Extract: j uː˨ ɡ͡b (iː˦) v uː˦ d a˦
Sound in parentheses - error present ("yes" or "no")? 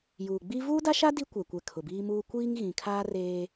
yes